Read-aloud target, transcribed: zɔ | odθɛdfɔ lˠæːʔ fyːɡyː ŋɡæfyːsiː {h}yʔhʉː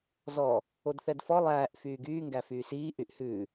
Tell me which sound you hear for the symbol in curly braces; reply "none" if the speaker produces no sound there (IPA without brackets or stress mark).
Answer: ʔ